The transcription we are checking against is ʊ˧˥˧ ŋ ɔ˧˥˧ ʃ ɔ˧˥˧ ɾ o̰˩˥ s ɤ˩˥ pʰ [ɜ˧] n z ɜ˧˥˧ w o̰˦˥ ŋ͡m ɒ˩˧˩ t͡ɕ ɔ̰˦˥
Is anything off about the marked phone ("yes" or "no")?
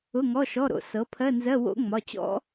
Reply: yes